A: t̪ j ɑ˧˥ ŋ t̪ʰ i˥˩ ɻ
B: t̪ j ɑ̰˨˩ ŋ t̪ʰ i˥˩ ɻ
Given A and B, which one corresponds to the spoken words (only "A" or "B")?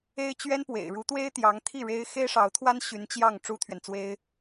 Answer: A